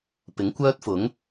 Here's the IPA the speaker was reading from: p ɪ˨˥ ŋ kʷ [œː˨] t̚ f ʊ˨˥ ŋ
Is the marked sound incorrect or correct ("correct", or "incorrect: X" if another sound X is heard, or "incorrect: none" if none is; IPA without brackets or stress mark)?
incorrect: œː˥